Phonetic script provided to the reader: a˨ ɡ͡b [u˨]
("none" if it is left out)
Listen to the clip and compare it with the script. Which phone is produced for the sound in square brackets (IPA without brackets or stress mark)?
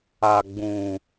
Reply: ũ˨